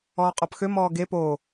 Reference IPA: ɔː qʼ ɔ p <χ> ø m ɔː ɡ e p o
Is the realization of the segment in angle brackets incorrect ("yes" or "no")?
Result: yes